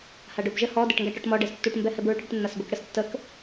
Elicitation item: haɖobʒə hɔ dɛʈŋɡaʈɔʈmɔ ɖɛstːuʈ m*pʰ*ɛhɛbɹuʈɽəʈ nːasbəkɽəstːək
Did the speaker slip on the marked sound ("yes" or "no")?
yes